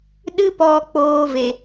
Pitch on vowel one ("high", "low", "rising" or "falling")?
high